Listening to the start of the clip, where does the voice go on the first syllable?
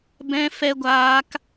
high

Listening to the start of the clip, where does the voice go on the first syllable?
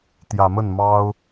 low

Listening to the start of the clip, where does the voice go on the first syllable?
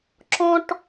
high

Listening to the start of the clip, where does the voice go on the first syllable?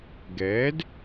rising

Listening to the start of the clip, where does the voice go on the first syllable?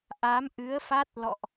rising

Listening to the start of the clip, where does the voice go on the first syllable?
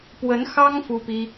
rising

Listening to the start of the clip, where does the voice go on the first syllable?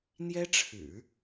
high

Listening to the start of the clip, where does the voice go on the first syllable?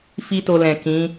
high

